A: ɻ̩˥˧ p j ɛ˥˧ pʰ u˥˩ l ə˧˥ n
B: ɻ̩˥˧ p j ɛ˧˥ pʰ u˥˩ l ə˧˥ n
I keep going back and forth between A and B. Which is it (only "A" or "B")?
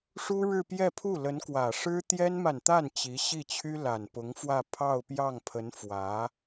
A